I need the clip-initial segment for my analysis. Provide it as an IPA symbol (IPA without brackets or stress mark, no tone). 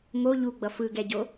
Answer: m